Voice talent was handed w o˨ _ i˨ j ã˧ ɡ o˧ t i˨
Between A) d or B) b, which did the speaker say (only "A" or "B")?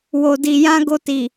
A